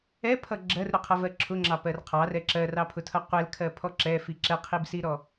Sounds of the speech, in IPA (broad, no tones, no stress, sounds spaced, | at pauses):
ɛ pʰ ʌ ɡ͡ǁ ɜ r ɾ ʊ qʰ ʌ v ɜ ǁʰ ʊ ŋ͡ǁ ɑ p ɜ r qʰ ɑ r ɛ ǁ ɜ r ɑ pʰ ʊ tʰ ʌ qʷ ɛ l kʰ ɜ pʰ ɔ ǁ ɛ f i ǁ ɛ qʰ i b s i ɾ ɔ